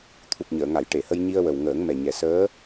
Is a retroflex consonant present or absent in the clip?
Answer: present